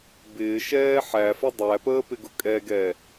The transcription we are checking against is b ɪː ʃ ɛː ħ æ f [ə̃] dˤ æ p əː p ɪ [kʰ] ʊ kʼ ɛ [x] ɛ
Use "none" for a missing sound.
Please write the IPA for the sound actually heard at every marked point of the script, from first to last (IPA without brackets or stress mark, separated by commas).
ə, ɡ, ɡ